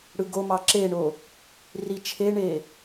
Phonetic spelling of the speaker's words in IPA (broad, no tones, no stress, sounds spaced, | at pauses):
ɽ ɯ ɡ o m ɑ ǁ e ɳ o | r i t͡ʃʰ e ɳ e